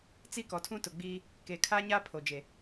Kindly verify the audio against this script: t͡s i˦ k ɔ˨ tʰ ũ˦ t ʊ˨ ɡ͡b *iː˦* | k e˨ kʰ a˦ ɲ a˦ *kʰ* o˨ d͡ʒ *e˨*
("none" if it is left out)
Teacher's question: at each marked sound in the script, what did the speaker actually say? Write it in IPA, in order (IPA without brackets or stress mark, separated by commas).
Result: iː˦, pʰ, e˨